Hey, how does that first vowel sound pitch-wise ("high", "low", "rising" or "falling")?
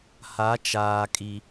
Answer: rising